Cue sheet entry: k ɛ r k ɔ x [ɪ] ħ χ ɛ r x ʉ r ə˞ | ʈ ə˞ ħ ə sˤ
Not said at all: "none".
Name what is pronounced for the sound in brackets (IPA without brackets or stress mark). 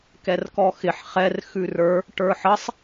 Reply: ɪ